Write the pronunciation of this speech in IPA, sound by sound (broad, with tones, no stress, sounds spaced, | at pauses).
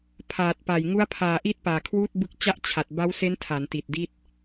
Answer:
pʰ aː˨˩ t̚ p a˨˩ j ŋ u˦˥ a̯ pʰ aː˨˩ ʔ i˥˩ t̚ p aː˨˩ kʰ w uː˥˩ t̚ b ɯ˦˥ k̚ t͡ɕ a˥˩ ʔ t͡ɕʰ a˨˩ t̚ b a˦˥ w s e˦˥ n tʰ a˩˦ n t i˨˩ t̚ d i˥˩ t̚